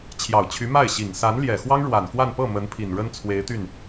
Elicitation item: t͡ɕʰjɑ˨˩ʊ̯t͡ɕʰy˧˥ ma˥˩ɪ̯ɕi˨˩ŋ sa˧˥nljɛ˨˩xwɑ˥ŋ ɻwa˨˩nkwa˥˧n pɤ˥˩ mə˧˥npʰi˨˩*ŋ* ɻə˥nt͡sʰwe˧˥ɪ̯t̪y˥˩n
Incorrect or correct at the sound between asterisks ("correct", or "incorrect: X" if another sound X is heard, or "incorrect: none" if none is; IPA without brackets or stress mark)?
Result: incorrect: n